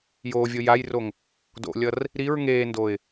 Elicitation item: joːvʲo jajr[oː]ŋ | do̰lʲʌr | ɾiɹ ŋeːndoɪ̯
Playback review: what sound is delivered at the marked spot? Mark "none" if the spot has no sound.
o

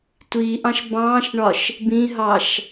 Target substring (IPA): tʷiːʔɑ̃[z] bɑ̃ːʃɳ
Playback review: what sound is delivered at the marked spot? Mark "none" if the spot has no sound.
ʃ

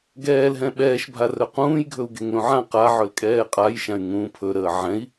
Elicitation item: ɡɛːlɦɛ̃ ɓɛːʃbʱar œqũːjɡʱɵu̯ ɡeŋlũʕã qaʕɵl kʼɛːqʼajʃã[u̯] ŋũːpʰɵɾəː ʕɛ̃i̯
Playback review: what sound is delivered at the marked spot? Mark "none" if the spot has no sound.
y̯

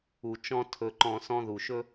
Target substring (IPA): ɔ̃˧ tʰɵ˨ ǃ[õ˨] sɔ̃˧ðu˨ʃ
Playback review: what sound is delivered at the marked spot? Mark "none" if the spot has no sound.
ɔ̃˨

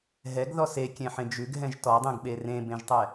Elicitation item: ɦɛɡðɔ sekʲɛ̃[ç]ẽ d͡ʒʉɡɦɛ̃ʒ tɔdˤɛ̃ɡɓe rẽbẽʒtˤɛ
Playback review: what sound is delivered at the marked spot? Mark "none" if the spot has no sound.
ħ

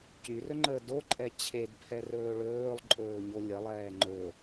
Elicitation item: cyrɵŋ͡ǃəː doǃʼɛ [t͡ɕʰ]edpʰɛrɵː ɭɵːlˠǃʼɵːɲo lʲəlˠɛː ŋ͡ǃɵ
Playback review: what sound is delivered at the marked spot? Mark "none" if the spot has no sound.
t͡ɕʰ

